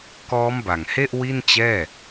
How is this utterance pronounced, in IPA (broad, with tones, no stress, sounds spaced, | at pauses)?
k ɔː˦˥ m b a˨˩ ŋ h e˥˩ ʔ w i˥˩ n t͡ɕ ɛː˥˩